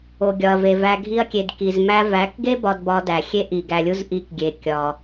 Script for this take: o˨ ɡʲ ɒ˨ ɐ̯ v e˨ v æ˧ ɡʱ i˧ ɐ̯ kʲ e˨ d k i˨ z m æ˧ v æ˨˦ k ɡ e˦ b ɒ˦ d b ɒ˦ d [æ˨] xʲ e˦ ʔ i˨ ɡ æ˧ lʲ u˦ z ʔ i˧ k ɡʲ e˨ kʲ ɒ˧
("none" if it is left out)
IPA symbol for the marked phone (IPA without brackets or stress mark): æ˨